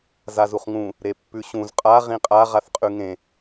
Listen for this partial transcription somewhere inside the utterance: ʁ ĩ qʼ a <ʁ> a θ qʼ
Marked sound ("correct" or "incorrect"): correct